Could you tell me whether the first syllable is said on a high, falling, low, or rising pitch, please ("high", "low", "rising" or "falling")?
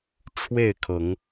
falling